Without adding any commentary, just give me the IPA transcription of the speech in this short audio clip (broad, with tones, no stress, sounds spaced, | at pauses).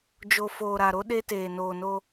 d͡ʒ o˨ f oː˨ ɾ a˨ ɾ o˦ ɗ e˦ t eː˨ n oː˨ n o˦